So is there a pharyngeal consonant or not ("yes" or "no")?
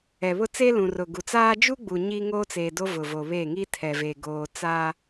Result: no